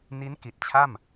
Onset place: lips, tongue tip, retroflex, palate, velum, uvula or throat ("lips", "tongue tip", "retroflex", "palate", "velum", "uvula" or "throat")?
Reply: tongue tip